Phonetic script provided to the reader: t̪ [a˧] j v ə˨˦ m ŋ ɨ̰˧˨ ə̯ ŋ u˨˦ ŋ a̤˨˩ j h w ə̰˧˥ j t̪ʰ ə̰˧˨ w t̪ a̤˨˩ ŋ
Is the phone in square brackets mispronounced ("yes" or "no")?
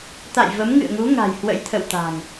yes